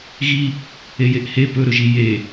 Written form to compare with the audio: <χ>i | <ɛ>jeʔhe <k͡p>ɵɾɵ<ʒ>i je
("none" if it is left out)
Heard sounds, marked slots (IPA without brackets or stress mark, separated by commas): ɣ, e, p, ʒ